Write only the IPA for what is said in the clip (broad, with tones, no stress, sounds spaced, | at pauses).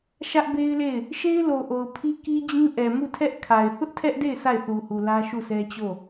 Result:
ʃ ä˦ ʔ b e˦ ɪ̯ l e˦˨ ɪ̯ | ʃ e˦ ɪ̯ l o˨ ʔ o˨ ʊ̯ pʰ i˦ k i˦ d͡ʑ ĩ˦ ʔ ɛ˨ m u˦˨ tʰ ɛ˦ ʔ kʰ a˨ ɪ̯ θ ʊ˦ ʔ tʰ ɛ˦ ʔ d e˦˨ ɪ̯ s a˦˨ ɪ̯ θ u˨ h u˨ l ä˦ ʃ u˦˨ s ɛ˦ t͡ɕ o˦˨